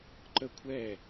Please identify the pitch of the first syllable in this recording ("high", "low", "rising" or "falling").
falling